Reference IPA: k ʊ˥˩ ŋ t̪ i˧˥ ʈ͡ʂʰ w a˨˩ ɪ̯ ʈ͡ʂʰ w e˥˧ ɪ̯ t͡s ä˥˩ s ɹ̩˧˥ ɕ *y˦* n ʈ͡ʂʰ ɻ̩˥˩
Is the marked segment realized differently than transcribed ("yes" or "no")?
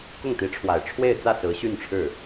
yes